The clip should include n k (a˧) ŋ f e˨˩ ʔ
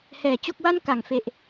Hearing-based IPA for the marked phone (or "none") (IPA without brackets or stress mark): a˨˩